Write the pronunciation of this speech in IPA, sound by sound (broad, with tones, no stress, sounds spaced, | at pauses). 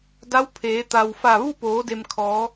d a˧˥ w pʰ eː˩˧ t̪ a˩ w f a˧˩ ʋ u˥˨ p oː˩˧ d e˩ m kʰ ɔː˩˧